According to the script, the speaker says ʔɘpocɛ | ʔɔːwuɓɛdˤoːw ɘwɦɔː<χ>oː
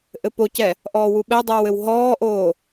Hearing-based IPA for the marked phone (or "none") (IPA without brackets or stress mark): ʔ